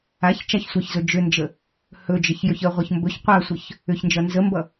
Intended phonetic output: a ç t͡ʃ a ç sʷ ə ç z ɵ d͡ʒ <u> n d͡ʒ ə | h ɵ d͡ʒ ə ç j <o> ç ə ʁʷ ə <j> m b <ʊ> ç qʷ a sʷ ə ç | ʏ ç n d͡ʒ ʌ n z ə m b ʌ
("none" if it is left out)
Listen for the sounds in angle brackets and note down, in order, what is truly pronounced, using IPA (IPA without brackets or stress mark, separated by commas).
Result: ʏ, ɵ, ç, ɵ